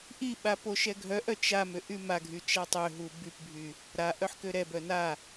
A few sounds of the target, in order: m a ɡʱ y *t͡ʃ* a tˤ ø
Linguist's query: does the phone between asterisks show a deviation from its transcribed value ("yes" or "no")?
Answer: no